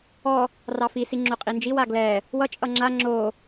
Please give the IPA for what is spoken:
ɔ | rɑfisi ŋ͡ǁoqʼind͡ʒiw aɡlɛ | wʌ t͡ʃʼʌŋ͡ǁa ŋ͡ǁo

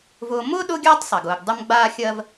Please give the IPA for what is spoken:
vʊː˦ mʊː˥ ɗʊː˥ɡʲaː˥tˤsˤe˩ɡ ʊː˨ɡ dˤə˥m ɡ͡baː˥xʲɜ˥v

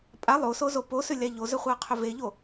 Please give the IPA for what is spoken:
pʼa lˠosozo posʏlʲa ʎozʏχʷaqʰʏ veʎo

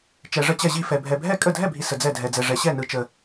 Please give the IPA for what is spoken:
t͡ʃɛ˨ʐə˥˩t͡ɕɛ˥˩ʑi˥˩ fɛ˨bʱɛ˨bʱɛ˥˩ kʼə˥˩dʱɛ˥˩bʱi˨ sə˨d͡zɛ˥˩dʱɛ˨d͡zɛ˨ ʐɛ˨ɕɛ˥˩nɯ˨t͡ʃə˨

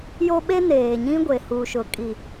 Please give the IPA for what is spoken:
jo˦ɓe˦ neː˨ɲĩ˦ ɡʷe˨huː˨ʃʊ˨ kʼi˨

